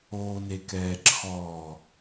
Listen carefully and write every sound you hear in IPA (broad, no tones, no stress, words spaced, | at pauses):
oːnekɛːǁʰɔː